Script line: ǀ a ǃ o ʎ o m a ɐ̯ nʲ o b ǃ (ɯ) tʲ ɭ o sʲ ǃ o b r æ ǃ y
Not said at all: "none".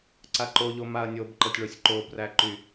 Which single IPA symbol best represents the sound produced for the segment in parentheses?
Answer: ɤ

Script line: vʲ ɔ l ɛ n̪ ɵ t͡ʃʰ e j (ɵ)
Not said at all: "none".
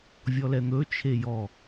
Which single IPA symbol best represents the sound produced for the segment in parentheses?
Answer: ɔ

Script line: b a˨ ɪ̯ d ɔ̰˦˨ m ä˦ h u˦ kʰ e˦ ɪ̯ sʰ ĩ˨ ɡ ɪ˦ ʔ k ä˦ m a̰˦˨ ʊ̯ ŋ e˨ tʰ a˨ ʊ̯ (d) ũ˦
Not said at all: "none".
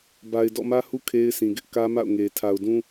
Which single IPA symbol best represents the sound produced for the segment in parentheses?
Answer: d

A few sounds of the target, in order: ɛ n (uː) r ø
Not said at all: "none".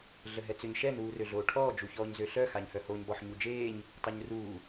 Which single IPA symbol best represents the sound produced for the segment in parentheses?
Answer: uː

